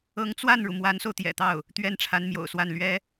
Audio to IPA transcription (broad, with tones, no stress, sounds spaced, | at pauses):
ɤ˧˥ ŋ t͡s w a˥˩ n ɻ u˩ m w a˧˥ n s o˧ ʊ̯ t̪ j ɛ̰˨˩ t̪ ɑ˥˩ ʊ̯ | t̪ ɥ ɛ˥˩ n ʈ͡ʂʰ a˧˥ n m j o̰˨˩ ʊ̯ s w a˥˩ n l ɥ ɛ˥